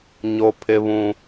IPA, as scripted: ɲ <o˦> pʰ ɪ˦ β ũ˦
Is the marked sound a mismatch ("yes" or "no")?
no